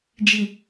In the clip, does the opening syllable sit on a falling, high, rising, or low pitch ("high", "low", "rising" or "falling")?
low